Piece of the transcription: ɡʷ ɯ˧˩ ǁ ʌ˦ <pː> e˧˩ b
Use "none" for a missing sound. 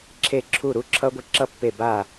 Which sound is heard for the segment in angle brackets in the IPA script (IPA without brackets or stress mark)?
pː